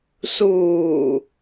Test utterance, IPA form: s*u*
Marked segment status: incorrect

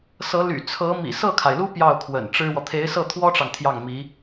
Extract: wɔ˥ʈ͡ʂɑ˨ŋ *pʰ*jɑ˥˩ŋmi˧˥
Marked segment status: incorrect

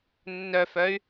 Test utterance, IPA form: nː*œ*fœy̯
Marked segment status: correct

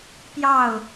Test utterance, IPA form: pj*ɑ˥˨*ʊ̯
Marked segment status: correct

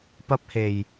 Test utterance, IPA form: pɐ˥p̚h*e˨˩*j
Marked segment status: correct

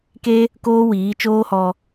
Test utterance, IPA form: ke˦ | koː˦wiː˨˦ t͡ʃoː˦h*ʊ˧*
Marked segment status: incorrect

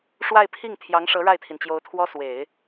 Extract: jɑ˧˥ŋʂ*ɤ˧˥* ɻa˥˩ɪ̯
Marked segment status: correct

